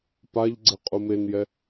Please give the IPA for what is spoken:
p a ʎ ɡ͡ǀ ɪ qʼ u m e n j ɛ

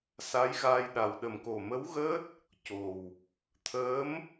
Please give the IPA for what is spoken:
s a˧˥ j ɣ a˧ j ɗ a˨˩ w ɗ ə˨˩ m k o˨˩ m ə˧˥ w ɣ əː˦˥ t̚ | c o˨˩ w | t̪ʰ əː˧˥ m

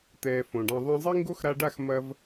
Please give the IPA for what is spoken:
t̪ ɛː˧ f õ˨ ɖ ã˧ ðˤ ɑ̃˧ zˤ i˦ ŋ ɡ o˦ x ɾ a˧ ɖ a˦˨ x m ɐ˧ v

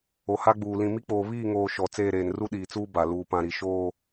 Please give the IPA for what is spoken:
o˨ h a˦ ɡ͡b uː˨ l ĩ˨ m i˦ k͡p oː˨ β iː˦˨ ŋ oː˨ ʃ ɔ˨ t͡s eː˦˨ ɾ eː˨ n r u˦ ɗ iː˨ t͡s uː˦ b a˨ l uː˨ p ã˨ ɾ i˨ ʃ oː˦˨

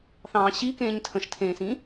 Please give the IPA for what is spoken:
θ ɑ̃ː ɕ i k ẽː ɲ tʰ ə̃ ʃ tʰ ẽː s ĩ

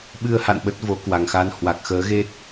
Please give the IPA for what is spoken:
ɓ ɨ˧ ə̯ h a̰˧˨ n ɓ ə˦˥ t̚ v o˨˦ k w a˨˩ ŋ x a˧ n h w a˨˩ k̚ x əː˨˦ ɣ e˦˥ t̚

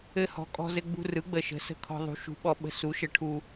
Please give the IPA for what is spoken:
ɘ˧ h ɔ̤˨˥ kʼ ɔ̤˧ z ɘ˧ ɡ͡b ṳ˧ r ɯ˨˥ ɡ͡b ə˧ ʃ ə̤˨˥ s ə̤˧ kʰ ɔ̤˧ ðˤ ṳ˨˥ ʃ ṳ˨˥ ɓ ɔ˧ ɓ ə̤˧ s u˨˥ ʃ ə˧ ʈʰ u˧

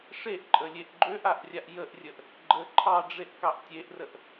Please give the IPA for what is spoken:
ʂ e ʔ ǃʼ ə lʲ e ʔ ɡ͡ǃ ø ʔ a ʔ rʲ a ʔ j ə ʔ rʲ ə ʔ | ɡ͡ǃ ə ǃʰ ɑ ɖ͡ʐ e ʔ k ɑ ʔ tʲ e ʔ r ə ʔ

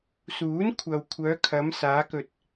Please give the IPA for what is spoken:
s uː˨˥ n kʷʰ ɐ˨ w kʷʰ œː˨˧ kʰ ɐ˨˧ m s aː˨˧ k ɵ˨ t̚

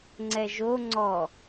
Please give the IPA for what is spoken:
ŋ͡ǀ ɛ ʒ o ŋ͡ǀ ɔ

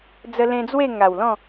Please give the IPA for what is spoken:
d͡z ə˧ l ẽ˧ d͡z w e˥˧ ŋ a˨˩ w l ɔ̃˥˧

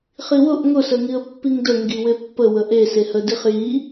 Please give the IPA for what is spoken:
χ i w ʊ ʔ ŋ ʊ s ə ŋ i ə̯ pː i ŋ d ə ŋ ɡ i w e pː ə w ə ʔ e s e h ə d i χ j i

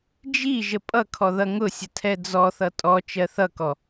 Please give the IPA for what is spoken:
d͡ʒ i ʒ ə pʼ ʌ kʰ ɔ ð ʌ ŋ ʊ sʲ ə tʰ ɛ d͡z ɔ θ ʌ tʼ ɔ t͡ʃ ɜ θ ʌ k ɔ

